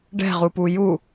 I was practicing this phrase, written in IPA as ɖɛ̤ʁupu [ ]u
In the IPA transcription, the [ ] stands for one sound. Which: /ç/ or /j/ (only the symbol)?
j